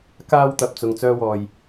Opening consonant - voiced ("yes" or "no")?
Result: no